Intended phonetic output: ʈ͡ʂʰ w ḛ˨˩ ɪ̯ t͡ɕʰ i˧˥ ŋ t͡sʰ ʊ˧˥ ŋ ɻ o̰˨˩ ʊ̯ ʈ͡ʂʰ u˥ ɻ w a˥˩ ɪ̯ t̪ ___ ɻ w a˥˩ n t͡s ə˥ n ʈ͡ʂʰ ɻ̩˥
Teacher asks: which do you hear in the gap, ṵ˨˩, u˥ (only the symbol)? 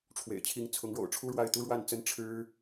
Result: u˥